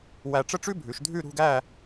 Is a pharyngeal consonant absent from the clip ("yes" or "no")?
yes